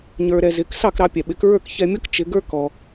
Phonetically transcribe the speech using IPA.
ɲ ə˞˧ ɾ ɛ˧ z ɪ˩˥ k s ɑ˥˩ k ɾ ɑ˧ pʲ ɛ˩ ɓ ɪ˩˥ k ɹ ə˞˥˩ k ç ɛ˧ mʲ ɔ˥ k t͡ʃ ɪ˩˥ ɡ ə˞˥ k ɔ˩

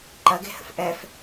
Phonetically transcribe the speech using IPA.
ǃ ɐ ɡ e̤ h ə̰ f ʔ ɛ f

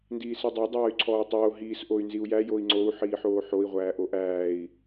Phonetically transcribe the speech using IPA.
n d iː s i dˤ o dˤ aː y̯ ǀʰ ɔː u̯ tˤ oː ɦ iː s ʔ o y̯ n z i u̯ j æ j o i̯ ŋ͡ǀ o u̯ ħ iː ħ oː ħ o i̯ ʁʷ æː ʔ o ʔ æː i̯

